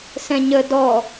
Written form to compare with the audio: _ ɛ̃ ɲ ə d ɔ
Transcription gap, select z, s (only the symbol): s